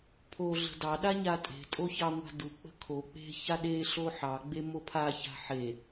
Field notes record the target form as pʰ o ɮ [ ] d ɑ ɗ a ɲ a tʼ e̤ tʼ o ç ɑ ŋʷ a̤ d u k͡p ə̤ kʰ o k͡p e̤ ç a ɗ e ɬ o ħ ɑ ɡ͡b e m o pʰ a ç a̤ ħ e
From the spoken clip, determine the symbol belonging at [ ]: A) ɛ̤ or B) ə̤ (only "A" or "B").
B